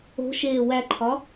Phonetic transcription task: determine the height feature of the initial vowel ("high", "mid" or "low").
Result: mid